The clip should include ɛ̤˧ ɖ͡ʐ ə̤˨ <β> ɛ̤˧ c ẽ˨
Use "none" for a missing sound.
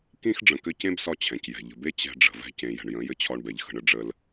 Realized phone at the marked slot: v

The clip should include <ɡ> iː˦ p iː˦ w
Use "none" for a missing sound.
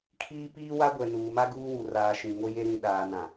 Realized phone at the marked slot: kʰ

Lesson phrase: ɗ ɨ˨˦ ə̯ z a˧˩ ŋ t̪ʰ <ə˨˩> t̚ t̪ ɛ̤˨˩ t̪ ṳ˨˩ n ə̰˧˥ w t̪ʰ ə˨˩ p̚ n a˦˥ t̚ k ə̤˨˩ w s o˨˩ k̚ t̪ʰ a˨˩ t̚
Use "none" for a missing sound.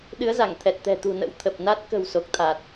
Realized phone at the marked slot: ɛ˨˩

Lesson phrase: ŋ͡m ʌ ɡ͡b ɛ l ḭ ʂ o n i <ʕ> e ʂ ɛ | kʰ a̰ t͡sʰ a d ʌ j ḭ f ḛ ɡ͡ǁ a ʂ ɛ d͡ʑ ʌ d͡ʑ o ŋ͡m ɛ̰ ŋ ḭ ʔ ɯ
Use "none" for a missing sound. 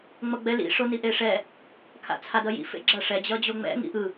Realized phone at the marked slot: ʔ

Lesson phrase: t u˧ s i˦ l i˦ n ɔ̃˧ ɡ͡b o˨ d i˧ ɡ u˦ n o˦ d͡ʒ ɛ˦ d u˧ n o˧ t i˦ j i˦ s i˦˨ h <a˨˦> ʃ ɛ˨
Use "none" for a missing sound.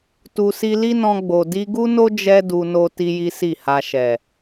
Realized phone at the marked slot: a˧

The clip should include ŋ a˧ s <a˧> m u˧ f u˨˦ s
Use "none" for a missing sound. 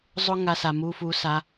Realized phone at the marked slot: a˨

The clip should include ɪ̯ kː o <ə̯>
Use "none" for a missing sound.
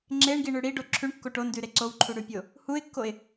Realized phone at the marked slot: ɪ̯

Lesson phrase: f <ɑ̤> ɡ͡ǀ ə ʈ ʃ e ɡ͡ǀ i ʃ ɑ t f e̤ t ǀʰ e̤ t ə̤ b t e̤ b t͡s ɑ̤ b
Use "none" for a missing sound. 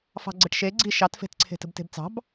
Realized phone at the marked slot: ɑ̤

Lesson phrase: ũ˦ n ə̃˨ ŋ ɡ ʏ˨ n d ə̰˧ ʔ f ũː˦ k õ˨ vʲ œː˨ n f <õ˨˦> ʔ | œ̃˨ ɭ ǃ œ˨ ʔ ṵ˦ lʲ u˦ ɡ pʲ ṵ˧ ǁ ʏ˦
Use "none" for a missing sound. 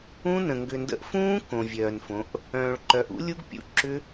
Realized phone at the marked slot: õ˨˦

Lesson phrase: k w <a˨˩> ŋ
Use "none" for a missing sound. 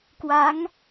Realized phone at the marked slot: a˦˥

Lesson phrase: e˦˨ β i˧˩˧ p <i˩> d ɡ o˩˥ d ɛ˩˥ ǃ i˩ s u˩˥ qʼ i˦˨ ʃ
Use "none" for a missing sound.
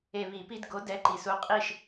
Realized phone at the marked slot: i˥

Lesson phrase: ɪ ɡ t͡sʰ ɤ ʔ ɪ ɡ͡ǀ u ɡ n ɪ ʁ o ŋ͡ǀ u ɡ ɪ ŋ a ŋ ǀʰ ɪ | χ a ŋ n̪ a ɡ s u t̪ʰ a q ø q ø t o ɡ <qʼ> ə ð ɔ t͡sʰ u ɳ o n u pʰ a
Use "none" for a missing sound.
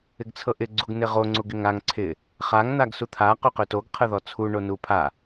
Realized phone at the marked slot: qʰ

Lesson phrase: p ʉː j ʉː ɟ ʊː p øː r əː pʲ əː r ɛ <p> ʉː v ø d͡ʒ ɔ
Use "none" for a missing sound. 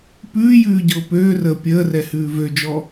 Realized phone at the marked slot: h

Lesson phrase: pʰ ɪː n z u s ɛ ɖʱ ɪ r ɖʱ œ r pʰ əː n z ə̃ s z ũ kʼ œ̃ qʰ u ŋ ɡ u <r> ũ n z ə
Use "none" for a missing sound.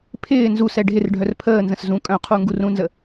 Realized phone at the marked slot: r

